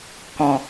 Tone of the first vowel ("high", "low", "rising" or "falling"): low